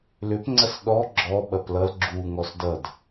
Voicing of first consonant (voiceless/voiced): voiced